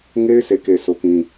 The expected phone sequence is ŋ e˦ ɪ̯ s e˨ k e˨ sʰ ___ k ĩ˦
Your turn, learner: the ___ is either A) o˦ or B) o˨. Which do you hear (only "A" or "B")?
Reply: A